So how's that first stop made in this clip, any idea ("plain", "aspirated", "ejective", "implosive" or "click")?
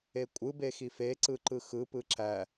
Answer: ejective